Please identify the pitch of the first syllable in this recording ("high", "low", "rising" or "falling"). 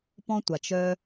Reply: high